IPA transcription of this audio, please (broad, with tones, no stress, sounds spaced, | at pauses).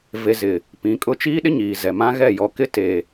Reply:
v e˨ z ɪ˨ | p ĩ˨˦ kʼ ʊ˦ t͡ʃ iː˦ ɗ ɪ˦ ɲ iː˨ z ɛ˨ m ã˦ ɣ ɛ˦˨ j ɔ˨ k ɪ˦ t e˨